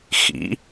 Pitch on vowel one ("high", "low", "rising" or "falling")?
rising